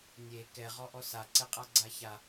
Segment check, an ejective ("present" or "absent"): present